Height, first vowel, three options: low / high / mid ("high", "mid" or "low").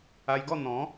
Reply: low